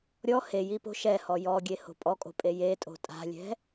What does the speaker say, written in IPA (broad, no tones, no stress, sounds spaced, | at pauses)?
ɾʲ ɔ h e j i p o̤ ʃ ɛ h ɔ j ɔ ɡʲ e h o̤ pʼ ɔ kʼ o̤ pʼ e j e tʼ o̤ tʼ a̤ lʲ ɛ̤